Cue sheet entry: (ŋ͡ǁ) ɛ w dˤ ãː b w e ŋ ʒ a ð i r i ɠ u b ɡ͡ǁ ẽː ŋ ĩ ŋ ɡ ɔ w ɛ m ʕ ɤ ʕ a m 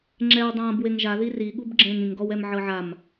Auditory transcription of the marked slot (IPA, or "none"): ŋ͡ǁ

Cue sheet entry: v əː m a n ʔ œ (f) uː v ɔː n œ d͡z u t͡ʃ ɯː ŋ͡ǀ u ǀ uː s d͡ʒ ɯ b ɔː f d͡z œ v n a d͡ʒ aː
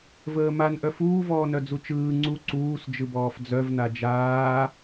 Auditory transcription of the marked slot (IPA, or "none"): f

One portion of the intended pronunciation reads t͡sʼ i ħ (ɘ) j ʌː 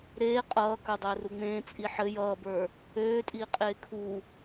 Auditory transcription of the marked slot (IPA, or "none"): ɘ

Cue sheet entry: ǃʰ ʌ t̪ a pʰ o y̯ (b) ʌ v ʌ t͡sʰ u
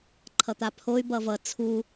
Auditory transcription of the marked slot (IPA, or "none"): b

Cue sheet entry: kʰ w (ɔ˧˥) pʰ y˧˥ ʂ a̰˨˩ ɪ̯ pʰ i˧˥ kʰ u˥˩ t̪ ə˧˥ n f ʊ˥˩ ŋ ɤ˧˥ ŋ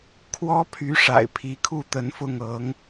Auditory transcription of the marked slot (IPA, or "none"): ɔ˥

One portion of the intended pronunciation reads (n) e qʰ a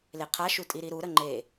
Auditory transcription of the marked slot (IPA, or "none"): l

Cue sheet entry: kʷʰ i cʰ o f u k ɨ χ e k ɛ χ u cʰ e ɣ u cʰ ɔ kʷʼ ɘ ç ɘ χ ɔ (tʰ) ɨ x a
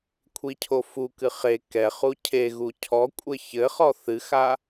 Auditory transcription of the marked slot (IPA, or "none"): θ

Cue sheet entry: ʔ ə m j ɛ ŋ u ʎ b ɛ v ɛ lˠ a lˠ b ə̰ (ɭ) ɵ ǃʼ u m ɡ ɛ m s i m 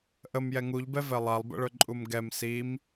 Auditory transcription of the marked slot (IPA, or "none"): ɭ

